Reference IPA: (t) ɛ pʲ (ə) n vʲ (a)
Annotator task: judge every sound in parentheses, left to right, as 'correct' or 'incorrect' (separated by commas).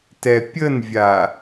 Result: correct, correct, correct